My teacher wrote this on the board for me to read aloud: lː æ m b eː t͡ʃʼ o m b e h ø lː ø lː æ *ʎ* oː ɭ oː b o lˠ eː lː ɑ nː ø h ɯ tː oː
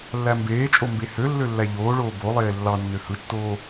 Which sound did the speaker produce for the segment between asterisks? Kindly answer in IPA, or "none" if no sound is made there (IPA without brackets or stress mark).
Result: ʎ